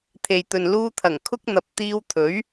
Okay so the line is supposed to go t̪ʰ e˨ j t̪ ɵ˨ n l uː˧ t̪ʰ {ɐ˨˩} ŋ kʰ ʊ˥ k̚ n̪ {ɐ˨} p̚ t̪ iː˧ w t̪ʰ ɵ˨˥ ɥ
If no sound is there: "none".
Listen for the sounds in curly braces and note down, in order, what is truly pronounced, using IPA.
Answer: ɐ˨˩, ɐ˨

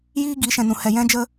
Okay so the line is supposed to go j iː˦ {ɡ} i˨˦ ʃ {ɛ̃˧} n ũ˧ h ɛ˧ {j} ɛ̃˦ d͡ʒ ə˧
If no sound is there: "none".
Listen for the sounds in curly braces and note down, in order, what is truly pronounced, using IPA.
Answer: ɡ, ɛ̃˧, j

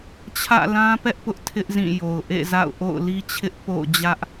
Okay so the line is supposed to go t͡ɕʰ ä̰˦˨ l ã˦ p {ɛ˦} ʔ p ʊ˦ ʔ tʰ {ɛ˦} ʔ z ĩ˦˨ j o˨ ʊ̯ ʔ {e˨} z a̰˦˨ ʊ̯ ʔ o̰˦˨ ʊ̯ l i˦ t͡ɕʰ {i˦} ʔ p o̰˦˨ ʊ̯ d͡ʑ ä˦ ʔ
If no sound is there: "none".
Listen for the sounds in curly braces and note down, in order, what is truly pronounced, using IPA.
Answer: ɛ˦, ɪ˦, ḛ˦˨, ɪ˦

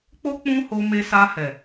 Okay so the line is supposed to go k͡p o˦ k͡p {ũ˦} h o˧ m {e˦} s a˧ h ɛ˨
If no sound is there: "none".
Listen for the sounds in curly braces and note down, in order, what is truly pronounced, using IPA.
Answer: ũ˦, e˧

